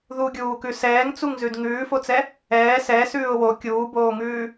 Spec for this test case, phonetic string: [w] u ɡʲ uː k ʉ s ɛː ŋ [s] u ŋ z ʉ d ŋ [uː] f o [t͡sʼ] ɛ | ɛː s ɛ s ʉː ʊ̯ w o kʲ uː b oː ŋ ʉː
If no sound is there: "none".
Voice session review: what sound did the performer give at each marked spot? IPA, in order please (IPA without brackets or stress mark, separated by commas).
ð, t͡s, ʉː, t͡s